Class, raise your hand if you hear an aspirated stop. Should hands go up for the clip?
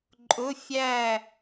no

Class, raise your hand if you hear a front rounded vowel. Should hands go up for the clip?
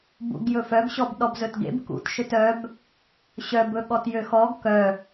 yes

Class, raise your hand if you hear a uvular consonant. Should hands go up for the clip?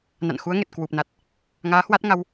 no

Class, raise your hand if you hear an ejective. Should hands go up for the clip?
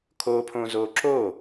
no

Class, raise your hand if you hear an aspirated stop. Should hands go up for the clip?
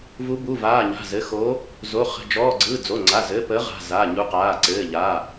no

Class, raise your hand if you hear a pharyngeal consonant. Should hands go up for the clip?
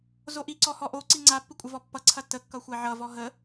yes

